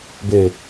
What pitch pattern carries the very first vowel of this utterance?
low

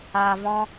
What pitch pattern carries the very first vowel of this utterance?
low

